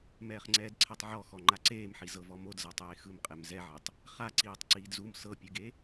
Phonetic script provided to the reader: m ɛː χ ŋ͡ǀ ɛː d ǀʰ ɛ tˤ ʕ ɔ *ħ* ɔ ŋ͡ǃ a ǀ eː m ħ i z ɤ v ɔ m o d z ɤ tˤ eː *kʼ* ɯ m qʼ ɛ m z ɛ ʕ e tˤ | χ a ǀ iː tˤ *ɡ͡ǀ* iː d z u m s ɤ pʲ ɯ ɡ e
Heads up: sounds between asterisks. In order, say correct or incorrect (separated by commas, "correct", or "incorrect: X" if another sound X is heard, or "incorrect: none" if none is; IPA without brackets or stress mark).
incorrect: x, incorrect: x, incorrect: ǀ